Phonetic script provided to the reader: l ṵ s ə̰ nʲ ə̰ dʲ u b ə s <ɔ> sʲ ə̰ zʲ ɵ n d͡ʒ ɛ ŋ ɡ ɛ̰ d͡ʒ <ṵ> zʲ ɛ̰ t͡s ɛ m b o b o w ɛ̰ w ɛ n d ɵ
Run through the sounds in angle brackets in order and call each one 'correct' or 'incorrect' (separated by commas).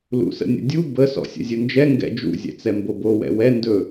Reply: incorrect, correct